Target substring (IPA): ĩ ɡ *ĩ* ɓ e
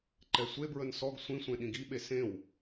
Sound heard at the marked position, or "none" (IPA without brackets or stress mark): i